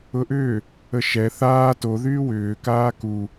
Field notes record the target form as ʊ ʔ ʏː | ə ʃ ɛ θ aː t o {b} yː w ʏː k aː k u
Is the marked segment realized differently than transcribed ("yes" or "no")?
yes